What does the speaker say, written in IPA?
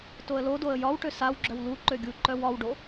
t o ə̯ l o d o ə̯ j ɒ w ʈ ø s a w ɡ͡ǁ œ w l u ǃ ø ɡʲ u ǃ œ w ɒ w ɖ o

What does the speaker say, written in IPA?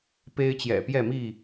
p e˦ ɪ̯ t͡ɕ j ɛ̰˨˩ p j ɛ˥˨ m i˥˨

